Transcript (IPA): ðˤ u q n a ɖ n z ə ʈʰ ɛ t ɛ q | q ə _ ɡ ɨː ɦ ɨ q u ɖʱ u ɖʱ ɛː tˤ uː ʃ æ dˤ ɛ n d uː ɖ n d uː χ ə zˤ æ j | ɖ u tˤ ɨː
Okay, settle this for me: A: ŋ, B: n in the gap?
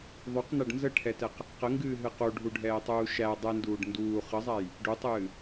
A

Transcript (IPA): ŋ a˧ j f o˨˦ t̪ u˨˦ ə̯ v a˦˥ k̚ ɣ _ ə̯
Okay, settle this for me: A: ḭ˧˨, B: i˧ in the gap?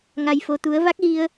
B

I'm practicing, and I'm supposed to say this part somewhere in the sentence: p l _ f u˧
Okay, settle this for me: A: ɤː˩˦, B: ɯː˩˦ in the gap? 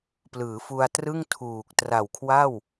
B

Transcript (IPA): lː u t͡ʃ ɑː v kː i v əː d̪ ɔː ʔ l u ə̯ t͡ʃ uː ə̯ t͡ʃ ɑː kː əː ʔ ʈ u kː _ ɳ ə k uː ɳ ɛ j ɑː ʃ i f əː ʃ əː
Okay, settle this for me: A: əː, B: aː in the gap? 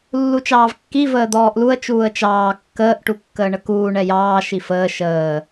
A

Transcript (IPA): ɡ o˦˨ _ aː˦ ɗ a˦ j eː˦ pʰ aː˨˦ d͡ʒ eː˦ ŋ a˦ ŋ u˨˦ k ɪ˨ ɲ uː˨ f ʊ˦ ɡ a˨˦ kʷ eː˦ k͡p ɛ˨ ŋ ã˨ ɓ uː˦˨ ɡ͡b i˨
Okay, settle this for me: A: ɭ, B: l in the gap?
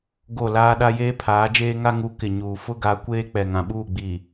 B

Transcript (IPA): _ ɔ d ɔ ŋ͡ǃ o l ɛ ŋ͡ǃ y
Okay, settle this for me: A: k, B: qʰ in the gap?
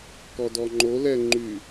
A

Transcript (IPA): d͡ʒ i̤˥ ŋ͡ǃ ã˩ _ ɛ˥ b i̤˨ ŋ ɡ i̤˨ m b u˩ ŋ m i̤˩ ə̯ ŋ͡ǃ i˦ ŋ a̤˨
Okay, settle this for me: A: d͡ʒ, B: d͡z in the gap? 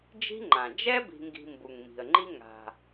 A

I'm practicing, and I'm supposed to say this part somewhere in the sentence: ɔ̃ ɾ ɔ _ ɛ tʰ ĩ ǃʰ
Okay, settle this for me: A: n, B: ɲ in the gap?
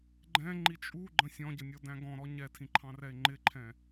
B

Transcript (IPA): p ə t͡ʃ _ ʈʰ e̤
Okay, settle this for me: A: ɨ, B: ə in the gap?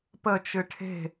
A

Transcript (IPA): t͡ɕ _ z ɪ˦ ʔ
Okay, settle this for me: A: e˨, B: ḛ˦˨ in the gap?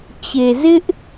A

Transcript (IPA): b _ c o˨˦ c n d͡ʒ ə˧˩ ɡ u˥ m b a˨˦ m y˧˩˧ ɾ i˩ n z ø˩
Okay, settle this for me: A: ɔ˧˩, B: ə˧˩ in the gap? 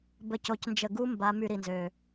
B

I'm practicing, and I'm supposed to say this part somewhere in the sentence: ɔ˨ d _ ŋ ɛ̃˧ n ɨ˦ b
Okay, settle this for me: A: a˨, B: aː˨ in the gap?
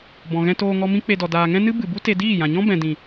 B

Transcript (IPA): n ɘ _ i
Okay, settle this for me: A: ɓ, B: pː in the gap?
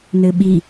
A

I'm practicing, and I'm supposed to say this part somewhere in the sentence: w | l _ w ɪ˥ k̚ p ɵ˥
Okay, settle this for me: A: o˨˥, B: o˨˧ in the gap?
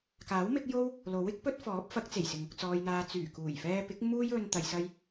A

